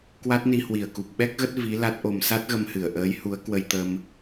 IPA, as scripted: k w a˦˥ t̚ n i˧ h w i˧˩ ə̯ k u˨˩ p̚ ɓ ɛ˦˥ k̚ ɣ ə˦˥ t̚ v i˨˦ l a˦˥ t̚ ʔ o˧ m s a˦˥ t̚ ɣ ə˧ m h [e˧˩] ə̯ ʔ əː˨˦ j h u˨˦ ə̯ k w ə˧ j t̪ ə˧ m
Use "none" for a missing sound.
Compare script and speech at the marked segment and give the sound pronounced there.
ɨ˧˩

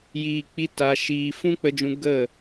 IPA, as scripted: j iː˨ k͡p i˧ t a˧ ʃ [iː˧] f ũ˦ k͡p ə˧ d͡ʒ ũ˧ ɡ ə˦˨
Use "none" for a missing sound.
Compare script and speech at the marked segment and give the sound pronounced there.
iː˧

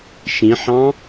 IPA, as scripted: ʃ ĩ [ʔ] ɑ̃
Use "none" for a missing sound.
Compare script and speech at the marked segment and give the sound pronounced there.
ħ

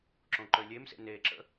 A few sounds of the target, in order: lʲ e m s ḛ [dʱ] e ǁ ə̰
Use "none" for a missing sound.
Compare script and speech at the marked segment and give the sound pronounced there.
n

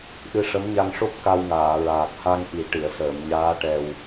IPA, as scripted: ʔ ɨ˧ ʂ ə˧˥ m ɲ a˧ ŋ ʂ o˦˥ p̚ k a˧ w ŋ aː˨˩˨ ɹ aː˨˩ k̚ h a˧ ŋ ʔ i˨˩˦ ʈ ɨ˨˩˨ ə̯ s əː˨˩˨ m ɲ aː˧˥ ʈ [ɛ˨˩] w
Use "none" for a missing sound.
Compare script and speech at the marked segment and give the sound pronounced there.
ɛ˨˩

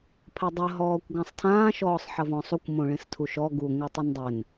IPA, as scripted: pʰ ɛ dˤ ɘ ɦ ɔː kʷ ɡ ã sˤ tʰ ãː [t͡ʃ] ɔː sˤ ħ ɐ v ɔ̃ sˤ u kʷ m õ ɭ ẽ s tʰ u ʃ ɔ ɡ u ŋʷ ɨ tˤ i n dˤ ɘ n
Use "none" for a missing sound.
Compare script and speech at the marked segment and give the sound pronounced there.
ʃ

